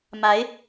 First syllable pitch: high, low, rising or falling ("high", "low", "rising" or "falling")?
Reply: rising